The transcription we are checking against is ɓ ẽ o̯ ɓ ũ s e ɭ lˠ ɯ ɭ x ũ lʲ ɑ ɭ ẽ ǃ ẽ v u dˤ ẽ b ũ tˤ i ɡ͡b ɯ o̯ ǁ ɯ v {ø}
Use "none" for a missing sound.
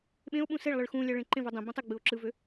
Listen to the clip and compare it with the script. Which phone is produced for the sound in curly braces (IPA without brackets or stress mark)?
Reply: ø